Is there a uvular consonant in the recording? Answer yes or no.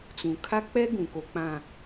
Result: no